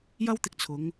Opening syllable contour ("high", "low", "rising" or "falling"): high